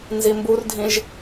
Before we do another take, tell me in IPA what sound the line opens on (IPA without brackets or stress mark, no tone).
n